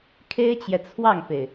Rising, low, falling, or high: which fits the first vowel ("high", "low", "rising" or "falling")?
high